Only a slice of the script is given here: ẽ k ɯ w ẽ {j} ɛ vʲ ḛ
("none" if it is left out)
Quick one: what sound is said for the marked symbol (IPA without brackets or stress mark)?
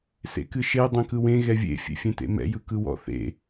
ɣ